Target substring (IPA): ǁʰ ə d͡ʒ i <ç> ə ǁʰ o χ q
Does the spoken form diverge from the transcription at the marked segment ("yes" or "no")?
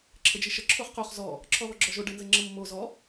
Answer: yes